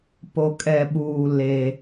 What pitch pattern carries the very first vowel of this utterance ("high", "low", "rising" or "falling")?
low